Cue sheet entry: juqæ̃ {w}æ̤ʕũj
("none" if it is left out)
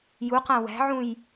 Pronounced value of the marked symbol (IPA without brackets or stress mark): w